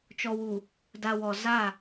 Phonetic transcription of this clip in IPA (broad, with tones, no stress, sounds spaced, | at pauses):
t͡ʃ ɔ˨ w u˨ | d a˨ w ɔ˨ z a˦˨